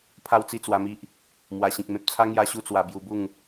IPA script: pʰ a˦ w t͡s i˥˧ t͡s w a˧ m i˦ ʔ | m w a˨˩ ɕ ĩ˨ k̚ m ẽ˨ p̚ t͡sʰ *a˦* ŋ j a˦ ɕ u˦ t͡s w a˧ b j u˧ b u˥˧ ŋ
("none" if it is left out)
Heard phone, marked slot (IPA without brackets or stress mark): a˦